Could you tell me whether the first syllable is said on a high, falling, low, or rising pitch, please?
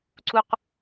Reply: high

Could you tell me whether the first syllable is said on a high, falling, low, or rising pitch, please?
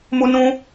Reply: high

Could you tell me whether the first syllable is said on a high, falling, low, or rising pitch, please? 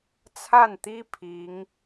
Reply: falling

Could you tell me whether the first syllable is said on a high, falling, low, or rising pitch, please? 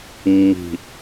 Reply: low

